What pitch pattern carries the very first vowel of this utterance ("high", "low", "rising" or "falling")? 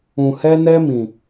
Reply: low